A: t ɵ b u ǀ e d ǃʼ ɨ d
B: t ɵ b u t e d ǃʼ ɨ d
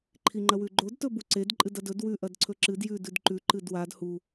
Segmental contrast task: A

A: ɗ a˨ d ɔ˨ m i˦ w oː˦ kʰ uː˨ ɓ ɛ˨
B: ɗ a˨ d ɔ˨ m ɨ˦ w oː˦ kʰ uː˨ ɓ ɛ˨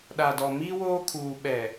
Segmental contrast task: A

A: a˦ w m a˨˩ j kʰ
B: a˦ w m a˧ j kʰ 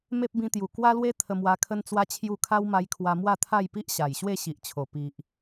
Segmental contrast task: B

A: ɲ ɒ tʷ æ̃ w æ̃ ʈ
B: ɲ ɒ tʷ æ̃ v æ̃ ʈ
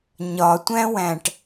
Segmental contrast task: A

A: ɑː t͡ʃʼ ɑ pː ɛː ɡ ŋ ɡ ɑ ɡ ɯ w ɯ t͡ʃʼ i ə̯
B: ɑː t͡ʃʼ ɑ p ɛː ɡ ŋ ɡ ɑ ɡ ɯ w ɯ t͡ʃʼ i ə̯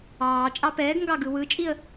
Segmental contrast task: B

